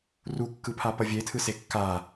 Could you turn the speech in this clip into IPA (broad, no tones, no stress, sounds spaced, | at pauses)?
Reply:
r u kː ɯ pʰ a p ʌ vʲ e tʰ ɯ s e kː a